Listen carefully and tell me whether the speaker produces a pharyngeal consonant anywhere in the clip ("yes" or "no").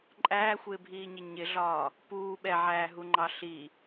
yes